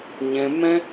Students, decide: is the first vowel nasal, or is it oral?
nasal